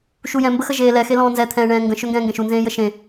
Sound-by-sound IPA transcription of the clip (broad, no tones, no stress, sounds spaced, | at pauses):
ʃ u j ɛ̃ m b ə x ə ʒ eː l ɛ x e l ɔ̃ː n z ɛ t̪ʰ ɛ̃ː ɳ ɛ̃ː ŋ ɡ ə̃ ʃ ø ŋ ɡ ɛ̃ː ŋ ɡ ɛ̃ ʃ u n z ẽː j ə ʃ ẽ